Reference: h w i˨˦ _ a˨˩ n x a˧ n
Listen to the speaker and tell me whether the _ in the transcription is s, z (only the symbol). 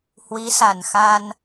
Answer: s